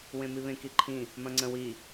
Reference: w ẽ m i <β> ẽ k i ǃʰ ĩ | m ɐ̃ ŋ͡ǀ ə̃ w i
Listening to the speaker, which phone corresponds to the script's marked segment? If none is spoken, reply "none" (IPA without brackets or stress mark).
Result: β